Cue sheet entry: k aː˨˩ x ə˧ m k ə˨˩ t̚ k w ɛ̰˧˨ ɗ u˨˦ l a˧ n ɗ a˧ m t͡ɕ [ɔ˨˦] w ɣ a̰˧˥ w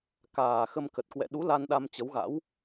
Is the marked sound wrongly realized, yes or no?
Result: yes